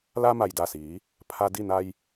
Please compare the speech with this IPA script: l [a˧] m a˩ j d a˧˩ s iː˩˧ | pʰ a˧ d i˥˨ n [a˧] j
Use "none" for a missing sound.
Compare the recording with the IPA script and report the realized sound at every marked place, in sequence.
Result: a˧, a˧

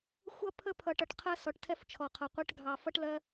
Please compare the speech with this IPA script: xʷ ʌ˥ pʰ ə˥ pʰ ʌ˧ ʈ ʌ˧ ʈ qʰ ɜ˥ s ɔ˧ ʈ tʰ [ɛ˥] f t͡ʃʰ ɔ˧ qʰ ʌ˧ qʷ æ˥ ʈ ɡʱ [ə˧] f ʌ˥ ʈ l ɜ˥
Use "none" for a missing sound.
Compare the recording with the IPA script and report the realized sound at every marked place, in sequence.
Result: ɛ˥, ɑ˧

